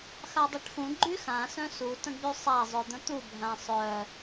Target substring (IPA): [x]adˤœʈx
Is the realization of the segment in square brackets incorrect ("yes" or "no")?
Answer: no